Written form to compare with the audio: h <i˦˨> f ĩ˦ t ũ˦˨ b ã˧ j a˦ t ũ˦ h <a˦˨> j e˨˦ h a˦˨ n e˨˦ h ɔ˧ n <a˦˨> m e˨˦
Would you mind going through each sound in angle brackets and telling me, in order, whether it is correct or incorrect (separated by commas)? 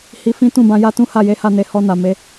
incorrect, correct, incorrect